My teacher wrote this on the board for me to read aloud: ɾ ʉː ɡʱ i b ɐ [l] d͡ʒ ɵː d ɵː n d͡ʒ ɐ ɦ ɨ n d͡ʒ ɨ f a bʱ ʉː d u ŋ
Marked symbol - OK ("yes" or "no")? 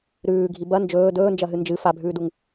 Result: no